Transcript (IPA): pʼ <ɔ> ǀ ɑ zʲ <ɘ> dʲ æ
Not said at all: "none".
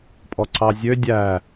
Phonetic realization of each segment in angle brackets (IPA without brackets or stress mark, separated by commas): ɔ, ø